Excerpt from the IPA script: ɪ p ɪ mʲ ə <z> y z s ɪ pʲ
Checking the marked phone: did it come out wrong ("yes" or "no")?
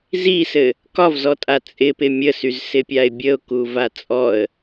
yes